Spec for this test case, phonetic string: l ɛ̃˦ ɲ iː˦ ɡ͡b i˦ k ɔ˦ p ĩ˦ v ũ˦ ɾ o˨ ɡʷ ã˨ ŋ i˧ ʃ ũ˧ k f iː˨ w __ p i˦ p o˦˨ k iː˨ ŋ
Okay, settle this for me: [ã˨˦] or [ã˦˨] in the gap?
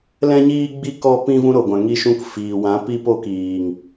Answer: ã˨˦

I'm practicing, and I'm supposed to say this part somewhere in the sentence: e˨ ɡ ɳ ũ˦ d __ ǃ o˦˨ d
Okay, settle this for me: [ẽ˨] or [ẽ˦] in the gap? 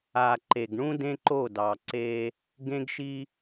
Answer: ẽ˦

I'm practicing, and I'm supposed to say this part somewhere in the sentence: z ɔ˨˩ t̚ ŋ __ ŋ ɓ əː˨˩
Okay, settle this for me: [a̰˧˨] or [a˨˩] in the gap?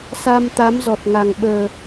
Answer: a˨˩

